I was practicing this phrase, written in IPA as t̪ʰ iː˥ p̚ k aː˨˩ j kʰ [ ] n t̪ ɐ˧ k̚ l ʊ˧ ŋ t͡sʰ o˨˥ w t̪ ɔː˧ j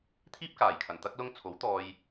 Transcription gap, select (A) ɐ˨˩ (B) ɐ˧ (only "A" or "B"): A